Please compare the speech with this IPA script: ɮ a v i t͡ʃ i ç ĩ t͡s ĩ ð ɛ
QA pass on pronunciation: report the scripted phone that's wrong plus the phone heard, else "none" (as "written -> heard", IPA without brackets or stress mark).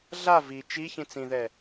none